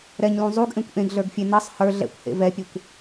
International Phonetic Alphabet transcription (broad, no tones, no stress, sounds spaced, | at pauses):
ɾ ɛ ɲ l ũ zˤ u ɡ ʔ ẽ kʷ ʔ ẽ ɡ ɮ ə˞ ɡ fʲ e n ʌ sˤ h ə˞ ɮ ɛ̰ kʷ h ḛ v ɛ pʲ e kʷ